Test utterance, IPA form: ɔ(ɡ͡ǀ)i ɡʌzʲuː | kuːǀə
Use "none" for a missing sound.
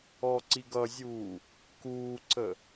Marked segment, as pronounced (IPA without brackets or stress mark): ǀ